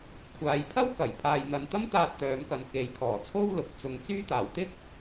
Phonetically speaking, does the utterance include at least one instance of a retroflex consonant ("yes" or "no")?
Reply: no